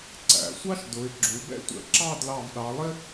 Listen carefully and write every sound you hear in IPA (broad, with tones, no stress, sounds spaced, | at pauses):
ǀ æ̰˩˧ sʷ ɑ˥ ʃ d ʊ˩˧ ɪ̯ ɡ͡ǁ u˩˧ b ɛ̰˥ tʷ ɛ̰˧ ǁ ɑ˥˧ d l ɑ˧˩ v ɗ ɑ˩˧ lˠ ɪ˥